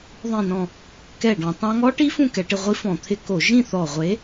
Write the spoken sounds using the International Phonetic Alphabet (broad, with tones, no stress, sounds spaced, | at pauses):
ðˤ ĩ˧˩ n ɔ̃˧˩ | k ɛ˧˩ ɖ ɔ̃˧˩˧ tˤ ã˧˥ ŋ ɔ˧˥ ʈ i˧˥ f ũ˥˧ k ɛ˧˩˧ ʈ ɪ˧ ʁʷ i˧˥ f ɔ̃˧˩˧ t̪ʰ ɪ˧ k o˧˩˧ ʒ ĩ˥˧ θ ɔ˧˩ ʁʷ e˧˥